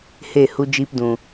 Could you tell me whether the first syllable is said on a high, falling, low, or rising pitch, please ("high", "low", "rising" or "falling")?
falling